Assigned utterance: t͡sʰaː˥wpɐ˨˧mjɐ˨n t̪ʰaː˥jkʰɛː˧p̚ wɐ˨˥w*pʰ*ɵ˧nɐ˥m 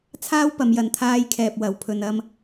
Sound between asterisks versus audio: correct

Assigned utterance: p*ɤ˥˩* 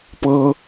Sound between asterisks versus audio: incorrect: ɤ˥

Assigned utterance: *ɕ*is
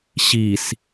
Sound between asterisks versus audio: correct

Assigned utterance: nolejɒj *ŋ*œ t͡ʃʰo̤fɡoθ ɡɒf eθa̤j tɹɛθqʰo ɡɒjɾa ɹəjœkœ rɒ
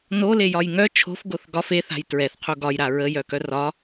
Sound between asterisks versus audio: correct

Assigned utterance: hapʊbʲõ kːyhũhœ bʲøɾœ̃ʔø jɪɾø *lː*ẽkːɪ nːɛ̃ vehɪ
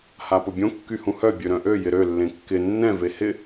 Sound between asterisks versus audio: correct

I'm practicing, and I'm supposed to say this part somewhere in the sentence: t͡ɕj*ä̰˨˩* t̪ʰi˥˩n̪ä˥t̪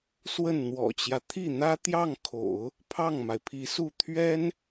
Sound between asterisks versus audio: incorrect: ä˦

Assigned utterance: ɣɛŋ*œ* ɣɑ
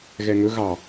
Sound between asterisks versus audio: incorrect: ɵ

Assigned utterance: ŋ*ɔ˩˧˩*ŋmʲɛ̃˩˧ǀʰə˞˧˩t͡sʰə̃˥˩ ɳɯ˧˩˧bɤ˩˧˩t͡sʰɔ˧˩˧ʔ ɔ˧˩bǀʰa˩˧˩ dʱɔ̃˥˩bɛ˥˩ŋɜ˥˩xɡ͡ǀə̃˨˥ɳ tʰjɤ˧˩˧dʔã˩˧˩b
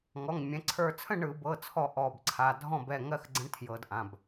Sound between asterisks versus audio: correct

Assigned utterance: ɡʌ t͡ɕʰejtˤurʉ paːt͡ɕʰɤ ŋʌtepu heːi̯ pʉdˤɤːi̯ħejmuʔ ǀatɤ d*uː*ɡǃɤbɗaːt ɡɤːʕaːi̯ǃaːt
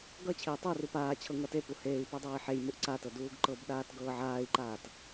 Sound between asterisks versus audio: correct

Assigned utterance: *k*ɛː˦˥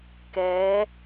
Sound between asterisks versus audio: correct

